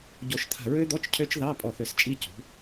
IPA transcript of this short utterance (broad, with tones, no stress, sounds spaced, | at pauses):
ɟ o˧˩ ʃ t̪ʰ a̤˧˩ ɹ ø˦˥ d̪ ɔ˧˥˧ t͡ʃ cʰ ø˦˥ t͡ʃ ð ɑ˧˥˧ pʼ ɔ˧˩ θ ø˧˩ s t͡ʃʼ i˦˥ c ṳ˩˥